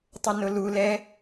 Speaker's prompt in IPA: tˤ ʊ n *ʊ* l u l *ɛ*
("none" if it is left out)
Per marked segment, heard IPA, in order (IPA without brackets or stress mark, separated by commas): ʊ, ɛ